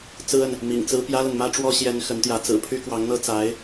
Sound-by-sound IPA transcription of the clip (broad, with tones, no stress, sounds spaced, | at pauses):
t͡s ɹ̩˥ ə˨ n | m ḭ˨˩ ŋ t͡s ɹ̩˥ p j ä˥ l ə˨ n m ä˥ ʈ͡ʂ w ɔ˥ ɕ j ɛ˧˥ n x ə˧˥ n t̪ j ä˧˥ t͡s ɹ̩˨˩ pʰ y˥ k w ɑ˧˥ ŋ n̪ ɤ˥ t͡s a˧˥ ɪ̯